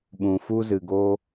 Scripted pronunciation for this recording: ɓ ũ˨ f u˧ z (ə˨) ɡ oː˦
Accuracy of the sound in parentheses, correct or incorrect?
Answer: incorrect